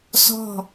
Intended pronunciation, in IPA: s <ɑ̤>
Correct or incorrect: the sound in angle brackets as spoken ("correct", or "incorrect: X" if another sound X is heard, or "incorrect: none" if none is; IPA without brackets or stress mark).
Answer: incorrect: ɔ̤